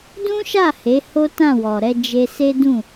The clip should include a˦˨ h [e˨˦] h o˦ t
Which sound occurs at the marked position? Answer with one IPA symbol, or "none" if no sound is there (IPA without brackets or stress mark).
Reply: e˨˦